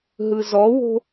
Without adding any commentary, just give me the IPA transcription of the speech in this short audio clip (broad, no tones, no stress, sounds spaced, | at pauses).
ɦ ɯ z ɔ w o̤